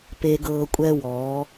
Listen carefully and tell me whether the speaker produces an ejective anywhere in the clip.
yes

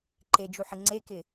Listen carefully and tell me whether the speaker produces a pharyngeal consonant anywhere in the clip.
yes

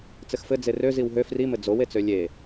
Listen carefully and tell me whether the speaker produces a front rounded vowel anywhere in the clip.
yes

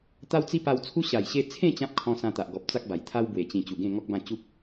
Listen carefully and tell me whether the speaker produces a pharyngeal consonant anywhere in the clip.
no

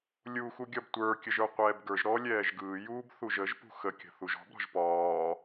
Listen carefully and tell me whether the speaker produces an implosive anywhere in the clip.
no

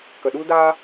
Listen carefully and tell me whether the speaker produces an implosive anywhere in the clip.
yes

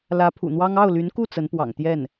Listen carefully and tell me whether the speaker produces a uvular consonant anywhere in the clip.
no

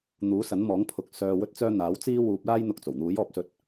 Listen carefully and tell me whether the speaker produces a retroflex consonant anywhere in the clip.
no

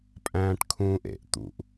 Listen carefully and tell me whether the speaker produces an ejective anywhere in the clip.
yes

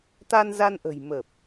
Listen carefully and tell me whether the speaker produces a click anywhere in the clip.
no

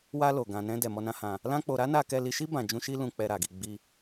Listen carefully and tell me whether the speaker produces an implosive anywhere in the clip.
no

